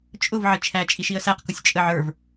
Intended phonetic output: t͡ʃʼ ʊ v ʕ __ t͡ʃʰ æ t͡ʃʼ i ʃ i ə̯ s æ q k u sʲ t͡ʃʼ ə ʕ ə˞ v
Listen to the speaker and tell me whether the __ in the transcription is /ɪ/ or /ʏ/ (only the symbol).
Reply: ɪ